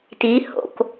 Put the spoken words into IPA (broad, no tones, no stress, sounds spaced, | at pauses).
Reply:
t i h o̰ k